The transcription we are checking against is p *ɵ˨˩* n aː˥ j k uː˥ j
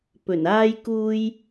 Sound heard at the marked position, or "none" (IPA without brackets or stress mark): ɵ˨˩